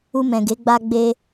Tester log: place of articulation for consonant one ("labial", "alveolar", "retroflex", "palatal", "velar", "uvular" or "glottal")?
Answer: labial